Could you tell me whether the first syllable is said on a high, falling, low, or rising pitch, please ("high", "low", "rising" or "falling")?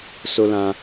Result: high